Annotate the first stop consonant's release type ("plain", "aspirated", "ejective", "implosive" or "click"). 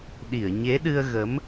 implosive